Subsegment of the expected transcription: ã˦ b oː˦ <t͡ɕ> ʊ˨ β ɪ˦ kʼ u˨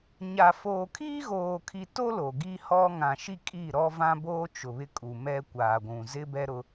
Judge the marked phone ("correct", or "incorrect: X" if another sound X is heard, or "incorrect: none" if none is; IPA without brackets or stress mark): incorrect: t͡ʃ